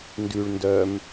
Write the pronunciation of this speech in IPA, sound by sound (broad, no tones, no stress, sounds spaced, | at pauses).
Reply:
n d ʉ ɭ n d œ m